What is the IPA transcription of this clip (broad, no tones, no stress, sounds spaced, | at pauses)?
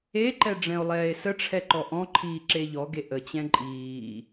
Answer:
e ǃ ɛ ɖ͡ʐ ɛ̃ o̯ lˠ ɛː e̯ s ə ʈ͡ʂʰ ɛ ǃ ɔ ʔ ɔ̃ ǃʰ iː ǁ e ʎ ɔ ɡ e ʔ ə t͡ɕ ɛ̃ ǃʼ iː